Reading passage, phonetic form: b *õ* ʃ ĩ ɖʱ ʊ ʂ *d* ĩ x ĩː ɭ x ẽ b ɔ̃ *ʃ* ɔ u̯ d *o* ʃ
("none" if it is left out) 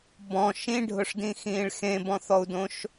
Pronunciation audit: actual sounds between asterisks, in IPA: ɔ̃, d, θ, õ

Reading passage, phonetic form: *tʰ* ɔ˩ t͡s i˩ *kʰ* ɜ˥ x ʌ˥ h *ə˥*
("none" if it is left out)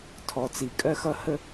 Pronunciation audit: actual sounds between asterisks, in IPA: tʰ, kʼ, ə˥

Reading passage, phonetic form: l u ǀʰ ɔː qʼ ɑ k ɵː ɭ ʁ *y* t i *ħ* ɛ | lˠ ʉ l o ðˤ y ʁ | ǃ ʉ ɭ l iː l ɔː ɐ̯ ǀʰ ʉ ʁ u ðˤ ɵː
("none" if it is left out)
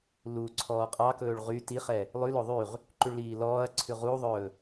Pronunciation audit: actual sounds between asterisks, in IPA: y, χ

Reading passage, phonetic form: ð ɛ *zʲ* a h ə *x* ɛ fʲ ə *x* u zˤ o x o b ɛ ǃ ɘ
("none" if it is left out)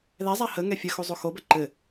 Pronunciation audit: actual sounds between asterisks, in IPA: zˤ, ŋ, x

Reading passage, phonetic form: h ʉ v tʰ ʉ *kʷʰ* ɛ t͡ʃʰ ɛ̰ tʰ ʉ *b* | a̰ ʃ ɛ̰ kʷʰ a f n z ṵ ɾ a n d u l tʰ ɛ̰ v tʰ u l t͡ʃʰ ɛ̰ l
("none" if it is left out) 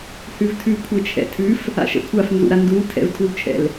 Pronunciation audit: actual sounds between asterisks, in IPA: kʷʰ, f

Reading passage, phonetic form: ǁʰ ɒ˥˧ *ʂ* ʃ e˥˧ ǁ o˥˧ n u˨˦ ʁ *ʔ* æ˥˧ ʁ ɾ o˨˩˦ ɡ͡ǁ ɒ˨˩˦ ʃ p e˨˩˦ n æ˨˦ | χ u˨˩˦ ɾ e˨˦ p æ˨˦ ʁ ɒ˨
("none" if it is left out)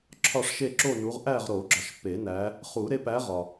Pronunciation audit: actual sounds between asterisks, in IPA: ʂ, ʔ

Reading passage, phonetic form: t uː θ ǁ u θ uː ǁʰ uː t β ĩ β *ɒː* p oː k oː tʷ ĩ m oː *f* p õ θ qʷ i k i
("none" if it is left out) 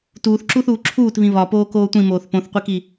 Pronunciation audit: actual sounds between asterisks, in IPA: ɒ, θ

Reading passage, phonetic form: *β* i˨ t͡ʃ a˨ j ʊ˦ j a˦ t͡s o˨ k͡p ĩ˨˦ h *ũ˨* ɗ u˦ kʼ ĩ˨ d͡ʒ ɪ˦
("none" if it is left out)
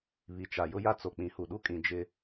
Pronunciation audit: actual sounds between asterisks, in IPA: β, u˨

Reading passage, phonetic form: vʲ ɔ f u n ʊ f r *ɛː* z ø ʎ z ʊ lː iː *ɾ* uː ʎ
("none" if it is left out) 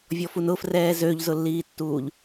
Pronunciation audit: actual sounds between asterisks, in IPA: ɛː, tː

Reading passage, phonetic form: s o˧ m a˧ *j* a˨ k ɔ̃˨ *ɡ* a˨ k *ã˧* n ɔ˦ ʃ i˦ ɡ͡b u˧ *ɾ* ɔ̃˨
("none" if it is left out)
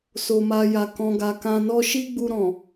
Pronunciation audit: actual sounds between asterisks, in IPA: j, ɡ, ã˧, ɾ

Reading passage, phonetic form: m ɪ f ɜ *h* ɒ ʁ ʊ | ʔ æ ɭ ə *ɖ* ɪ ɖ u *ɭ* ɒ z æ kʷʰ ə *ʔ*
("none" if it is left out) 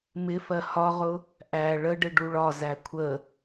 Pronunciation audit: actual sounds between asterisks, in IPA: h, ɖ, ɭ, none

